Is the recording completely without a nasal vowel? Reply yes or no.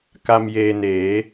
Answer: yes